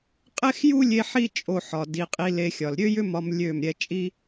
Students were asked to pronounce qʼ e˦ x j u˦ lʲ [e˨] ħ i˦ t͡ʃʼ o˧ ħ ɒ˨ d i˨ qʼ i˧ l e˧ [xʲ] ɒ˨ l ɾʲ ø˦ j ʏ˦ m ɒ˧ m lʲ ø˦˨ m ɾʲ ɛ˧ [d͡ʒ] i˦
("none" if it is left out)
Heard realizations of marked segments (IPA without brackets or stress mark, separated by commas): e˧, xʲ, t͡ʃʼ